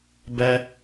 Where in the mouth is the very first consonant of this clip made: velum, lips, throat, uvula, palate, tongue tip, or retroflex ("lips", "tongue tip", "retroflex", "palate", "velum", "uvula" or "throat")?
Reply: lips